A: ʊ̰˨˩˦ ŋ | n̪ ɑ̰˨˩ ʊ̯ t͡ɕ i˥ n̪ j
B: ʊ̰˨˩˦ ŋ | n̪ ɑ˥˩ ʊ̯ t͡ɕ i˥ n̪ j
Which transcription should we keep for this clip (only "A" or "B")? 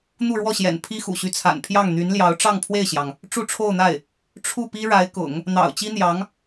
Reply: A